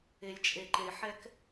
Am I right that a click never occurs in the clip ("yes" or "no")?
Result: no